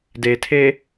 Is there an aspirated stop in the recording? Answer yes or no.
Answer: yes